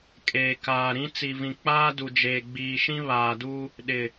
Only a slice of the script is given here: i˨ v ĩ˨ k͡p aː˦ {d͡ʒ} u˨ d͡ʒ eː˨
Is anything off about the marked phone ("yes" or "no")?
yes